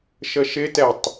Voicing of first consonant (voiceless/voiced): voiceless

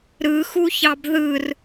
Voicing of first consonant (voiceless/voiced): voiced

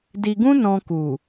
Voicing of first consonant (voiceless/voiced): voiced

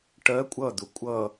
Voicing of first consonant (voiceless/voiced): voiceless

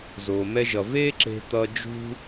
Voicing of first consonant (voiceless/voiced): voiced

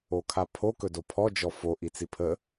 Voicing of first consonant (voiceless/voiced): voiceless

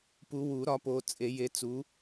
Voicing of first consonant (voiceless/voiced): voiceless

